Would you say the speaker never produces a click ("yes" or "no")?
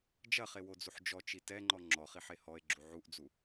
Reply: no